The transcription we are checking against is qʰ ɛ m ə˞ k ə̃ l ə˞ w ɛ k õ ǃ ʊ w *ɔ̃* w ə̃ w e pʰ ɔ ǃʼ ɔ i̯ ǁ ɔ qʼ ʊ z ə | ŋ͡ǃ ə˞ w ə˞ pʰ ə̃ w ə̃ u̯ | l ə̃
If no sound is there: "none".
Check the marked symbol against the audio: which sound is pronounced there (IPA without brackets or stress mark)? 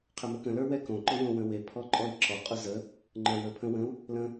õ